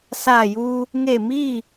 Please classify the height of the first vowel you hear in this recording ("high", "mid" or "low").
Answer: low